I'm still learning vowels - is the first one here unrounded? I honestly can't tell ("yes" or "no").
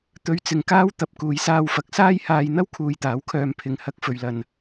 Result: no